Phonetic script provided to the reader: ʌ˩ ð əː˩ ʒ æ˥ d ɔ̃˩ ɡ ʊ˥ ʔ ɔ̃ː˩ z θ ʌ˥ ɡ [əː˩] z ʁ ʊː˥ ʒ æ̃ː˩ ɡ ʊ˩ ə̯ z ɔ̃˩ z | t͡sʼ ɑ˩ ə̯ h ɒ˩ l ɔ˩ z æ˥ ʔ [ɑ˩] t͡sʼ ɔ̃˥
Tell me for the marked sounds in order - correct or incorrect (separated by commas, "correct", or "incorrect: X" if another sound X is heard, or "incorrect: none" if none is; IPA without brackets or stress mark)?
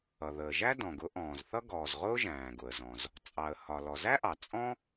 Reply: incorrect: ɔː˩, correct